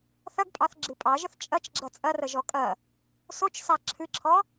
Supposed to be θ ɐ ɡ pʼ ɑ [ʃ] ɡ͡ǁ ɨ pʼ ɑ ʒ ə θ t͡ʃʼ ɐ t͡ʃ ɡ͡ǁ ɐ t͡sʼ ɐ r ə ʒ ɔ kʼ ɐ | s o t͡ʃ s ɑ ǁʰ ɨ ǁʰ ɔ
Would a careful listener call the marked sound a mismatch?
yes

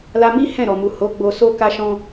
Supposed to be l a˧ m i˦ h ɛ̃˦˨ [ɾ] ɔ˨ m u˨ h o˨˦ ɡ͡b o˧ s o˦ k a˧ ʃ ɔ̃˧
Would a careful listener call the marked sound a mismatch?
no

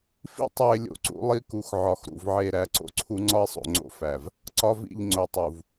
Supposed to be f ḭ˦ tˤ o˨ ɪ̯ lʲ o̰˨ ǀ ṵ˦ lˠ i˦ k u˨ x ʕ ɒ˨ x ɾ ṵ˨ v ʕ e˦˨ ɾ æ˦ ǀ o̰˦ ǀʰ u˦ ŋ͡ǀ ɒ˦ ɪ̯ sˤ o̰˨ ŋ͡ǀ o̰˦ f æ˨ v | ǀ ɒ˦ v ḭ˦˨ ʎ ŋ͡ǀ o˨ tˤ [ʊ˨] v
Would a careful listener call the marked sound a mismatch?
yes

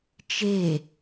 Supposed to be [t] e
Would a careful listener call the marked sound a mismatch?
yes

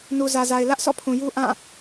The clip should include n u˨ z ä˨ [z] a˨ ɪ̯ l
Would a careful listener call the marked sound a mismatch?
no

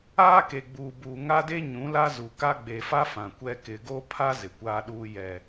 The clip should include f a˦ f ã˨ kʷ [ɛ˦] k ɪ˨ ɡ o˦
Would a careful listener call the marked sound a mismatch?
no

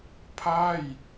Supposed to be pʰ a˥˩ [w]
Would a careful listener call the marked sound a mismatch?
yes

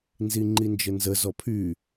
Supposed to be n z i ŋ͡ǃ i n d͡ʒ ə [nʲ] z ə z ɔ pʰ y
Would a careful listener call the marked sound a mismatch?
yes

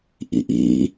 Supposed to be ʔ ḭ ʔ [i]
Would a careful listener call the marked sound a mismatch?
yes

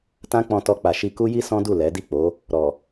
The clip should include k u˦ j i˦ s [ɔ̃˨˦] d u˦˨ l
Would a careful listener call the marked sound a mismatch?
yes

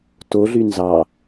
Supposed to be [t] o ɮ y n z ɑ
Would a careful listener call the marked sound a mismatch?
no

